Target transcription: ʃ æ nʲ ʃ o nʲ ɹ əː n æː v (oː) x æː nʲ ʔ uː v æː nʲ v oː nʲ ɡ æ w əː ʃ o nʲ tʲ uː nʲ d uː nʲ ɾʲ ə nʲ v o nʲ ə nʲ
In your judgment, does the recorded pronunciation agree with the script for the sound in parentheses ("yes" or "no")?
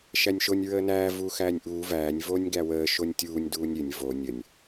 no